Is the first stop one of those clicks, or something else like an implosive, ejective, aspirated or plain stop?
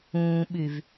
implosive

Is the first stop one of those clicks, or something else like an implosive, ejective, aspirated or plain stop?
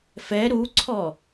click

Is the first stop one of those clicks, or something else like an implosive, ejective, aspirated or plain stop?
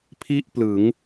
aspirated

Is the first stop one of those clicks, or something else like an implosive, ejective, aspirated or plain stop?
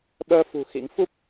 implosive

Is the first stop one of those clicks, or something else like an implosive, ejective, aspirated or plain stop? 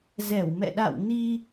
implosive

